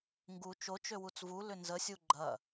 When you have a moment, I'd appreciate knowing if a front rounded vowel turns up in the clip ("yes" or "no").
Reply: yes